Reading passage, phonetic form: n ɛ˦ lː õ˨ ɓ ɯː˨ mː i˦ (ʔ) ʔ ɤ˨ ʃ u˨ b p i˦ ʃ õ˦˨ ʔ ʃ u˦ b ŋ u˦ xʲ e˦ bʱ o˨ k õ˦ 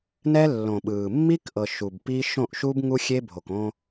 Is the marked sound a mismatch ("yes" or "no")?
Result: yes